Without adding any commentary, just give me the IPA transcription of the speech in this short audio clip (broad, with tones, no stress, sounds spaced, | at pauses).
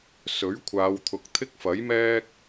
s ɵ˨˥ ɥ kʷʰ aː˨˧ w t̪ʰ ʊ˨ k̚ t̪ʰ ɪ˥ k̚ f ɐ˨˥ j m ɛː˥ k̚